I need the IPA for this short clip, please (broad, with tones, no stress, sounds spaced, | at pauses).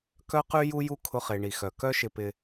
k œ˦ q y˦ j u˦ j u˦ kʰ ʊ˦ χ e˧ ɳ i˨ x œ˨ k œ˦ ʃ ɪ˧ p ɪ˧